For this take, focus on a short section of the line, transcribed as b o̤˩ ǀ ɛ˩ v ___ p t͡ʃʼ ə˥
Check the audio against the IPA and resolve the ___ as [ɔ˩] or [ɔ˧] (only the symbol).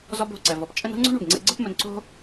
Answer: ɔ˩